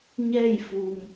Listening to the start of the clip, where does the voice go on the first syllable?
falling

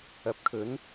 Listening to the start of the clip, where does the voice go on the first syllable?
rising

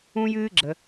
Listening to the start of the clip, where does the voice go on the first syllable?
high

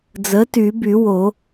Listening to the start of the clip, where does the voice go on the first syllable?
rising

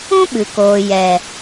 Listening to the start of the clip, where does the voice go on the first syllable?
high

